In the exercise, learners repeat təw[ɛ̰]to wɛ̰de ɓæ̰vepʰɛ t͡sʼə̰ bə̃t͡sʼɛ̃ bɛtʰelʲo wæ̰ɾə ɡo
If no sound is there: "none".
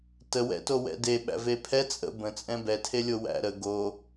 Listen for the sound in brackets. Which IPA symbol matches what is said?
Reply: ɛ̰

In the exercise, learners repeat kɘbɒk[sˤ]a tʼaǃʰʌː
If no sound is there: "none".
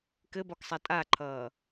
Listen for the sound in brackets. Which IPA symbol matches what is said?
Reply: sˤ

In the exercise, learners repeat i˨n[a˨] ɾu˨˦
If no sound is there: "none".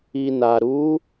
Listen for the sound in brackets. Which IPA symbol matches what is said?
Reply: a˨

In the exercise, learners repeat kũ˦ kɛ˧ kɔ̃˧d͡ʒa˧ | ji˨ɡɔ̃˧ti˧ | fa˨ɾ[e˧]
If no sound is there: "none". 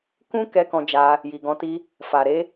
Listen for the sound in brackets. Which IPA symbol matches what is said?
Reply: e˨˦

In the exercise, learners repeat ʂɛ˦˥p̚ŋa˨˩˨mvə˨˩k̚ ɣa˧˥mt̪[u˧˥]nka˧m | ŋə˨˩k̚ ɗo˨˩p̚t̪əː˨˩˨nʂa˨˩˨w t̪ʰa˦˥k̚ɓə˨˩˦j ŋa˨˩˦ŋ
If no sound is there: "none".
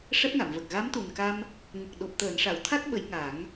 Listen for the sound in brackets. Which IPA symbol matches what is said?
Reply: u˨˩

